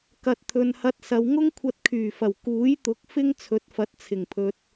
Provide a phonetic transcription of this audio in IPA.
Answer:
kɐ˨t̚ t̪ʰɵ˨nhɐ˧t̚sɐ˨˧w ŋʊ˥ŋkʷʰɐ˧t̚ kʰyː˨˩fɐ˨˩w kuː˨˥jt̪ʊ˨˥k̚ fɪ˥ŋ t͡sʰɵ˨˥t̚fɐ˨˥t̚ t͡sʰɪ˨˩ŋpʰɵ˨t̚

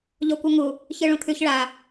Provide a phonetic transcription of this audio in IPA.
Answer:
ʎokʷʌŋu | çɯɭũt̪ʰʉç ɭa

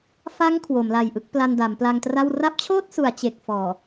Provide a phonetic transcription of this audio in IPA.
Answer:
fa˦˥ŋ kʰwo˩˦mla˨˩jʔɯ˦˥k̚ pla˧nda˩˦mpla˧ŋtra˥˩w ra˦˥p̚t͡ɕʰoː˥˩t̚su˩˦a̯ t͡ɕe˨˩k̚fɔː˨˩

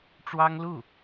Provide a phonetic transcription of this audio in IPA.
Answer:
ʈ͡ʂwɑ˥ŋlu˥˩

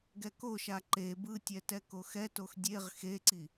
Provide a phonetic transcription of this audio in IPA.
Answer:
ɡɛkoʃa ǃe bɯtʲɛ tɛkoxɛtox dʲeʁ xeǀi

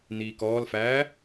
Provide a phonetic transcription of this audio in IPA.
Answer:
niːkɔːlfæː

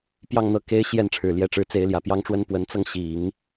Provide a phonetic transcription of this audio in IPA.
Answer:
pjɑ˥˧ŋn̪ɤ˥˩ ke˥ɪ̯ ɕjɛ˥˩nʈ͡ʂʰɻ̩˨˩ljɛ˧˥ʈ͡ʂɻ̩˧˥ t͡se˧˥ɪ̯ljä˨˩pjɑ˥ŋʈ͡ʂwə˥n pwə˧˥nt͡sɤ˧ŋɕi˨˩˦ŋ

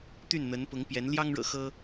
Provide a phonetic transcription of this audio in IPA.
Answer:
t̪y˥˩nn̪ə˧˥npʊ˧˥ŋpjɛ˧˥n ljɑ˥ŋɻɤ̰˨˩ xɤ˥

